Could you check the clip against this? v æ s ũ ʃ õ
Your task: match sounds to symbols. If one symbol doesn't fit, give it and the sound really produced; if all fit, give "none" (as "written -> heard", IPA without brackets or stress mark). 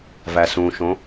none